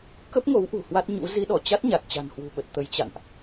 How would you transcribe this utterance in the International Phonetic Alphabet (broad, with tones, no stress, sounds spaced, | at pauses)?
k ə˦˥ p̚ ŋ o˨˦ w ʔ ṳ˨˩ h w a˦˥ t̚ ɲ ṵ˧˥ z i˨˦ ɗ ɔ˧˩ t͡ɕ a˦˥ t̚ ɲ a˨˩ t̚ t͡ɕ a̤˨˩ n h w ṳ˨˩ ɓ ə˨˩ t̚ t̪ ə˨˦ j t͡ɕ a̰˧˨ n ʔ